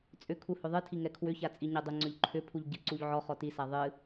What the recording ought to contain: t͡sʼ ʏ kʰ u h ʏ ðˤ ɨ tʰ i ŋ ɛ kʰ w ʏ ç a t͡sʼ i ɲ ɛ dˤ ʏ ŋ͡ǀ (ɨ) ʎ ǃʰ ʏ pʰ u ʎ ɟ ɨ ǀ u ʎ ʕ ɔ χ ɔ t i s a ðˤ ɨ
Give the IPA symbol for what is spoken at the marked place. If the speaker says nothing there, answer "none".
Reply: ʏ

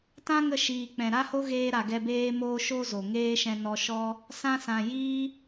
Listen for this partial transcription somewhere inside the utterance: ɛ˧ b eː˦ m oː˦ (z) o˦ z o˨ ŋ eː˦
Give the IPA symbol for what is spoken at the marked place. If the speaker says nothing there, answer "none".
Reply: ʃ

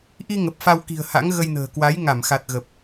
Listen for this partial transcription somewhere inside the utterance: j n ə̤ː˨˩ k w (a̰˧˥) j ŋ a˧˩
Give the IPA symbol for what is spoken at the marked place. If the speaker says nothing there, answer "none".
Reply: a˨˦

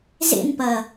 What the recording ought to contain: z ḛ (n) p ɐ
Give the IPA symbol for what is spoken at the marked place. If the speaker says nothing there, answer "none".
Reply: n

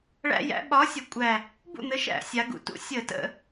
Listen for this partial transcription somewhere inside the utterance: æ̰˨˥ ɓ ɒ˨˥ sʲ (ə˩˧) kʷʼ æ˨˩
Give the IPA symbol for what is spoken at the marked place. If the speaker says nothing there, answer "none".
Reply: ə˩˧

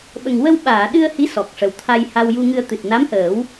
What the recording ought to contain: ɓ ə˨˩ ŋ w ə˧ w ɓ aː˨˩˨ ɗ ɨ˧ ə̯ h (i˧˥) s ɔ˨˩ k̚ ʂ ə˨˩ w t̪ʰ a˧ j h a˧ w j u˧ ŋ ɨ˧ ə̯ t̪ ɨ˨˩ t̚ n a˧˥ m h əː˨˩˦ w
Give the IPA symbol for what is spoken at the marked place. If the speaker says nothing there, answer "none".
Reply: i˧˥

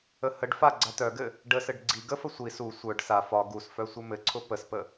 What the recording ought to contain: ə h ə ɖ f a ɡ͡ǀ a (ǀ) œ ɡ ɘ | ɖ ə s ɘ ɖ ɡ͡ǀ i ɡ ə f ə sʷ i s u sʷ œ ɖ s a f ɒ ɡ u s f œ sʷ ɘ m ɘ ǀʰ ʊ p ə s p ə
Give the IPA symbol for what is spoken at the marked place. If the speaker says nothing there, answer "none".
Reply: t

